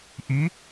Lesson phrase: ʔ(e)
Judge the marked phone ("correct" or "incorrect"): incorrect